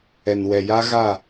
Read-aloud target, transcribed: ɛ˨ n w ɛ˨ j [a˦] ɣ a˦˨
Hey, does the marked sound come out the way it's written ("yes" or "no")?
yes